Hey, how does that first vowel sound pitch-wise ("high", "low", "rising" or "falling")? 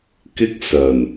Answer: high